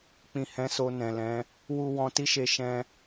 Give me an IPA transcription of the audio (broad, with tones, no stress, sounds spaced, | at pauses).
k͡p ĩ˨ h ɛ̃˨˦ s o˧ n ɛ̃˨ l ɛ̃˨˦ | w u˧ w ɔ̃˧ t i˦ ʃ e˧ ʃ ɛ̃˧